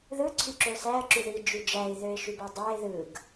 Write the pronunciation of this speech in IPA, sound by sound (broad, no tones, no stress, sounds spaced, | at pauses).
ð ɯ ǀʰ y ǁ ø ʊ̯ s æ ə̯ ǁ y ð i d͡ʒ y d͡ʒ æ ɪ̯ ð ø ɪ̯ ʃ y b u dˤ æ ɪ̯ ð ɯ ɡ